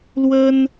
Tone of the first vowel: high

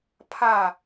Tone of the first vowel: falling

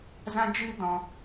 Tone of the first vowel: high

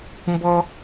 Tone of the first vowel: high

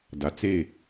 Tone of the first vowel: low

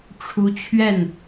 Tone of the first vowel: rising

